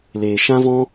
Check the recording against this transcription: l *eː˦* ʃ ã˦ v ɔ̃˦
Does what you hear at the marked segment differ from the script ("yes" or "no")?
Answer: yes